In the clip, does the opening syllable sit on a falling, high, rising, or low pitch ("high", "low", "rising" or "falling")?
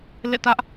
falling